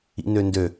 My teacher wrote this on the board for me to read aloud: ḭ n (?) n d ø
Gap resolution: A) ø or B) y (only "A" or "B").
A